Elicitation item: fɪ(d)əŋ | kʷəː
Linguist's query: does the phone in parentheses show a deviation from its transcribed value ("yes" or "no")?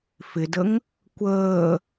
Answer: no